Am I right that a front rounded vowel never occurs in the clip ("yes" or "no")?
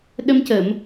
yes